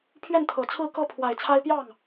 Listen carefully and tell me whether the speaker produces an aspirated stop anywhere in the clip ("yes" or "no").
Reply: yes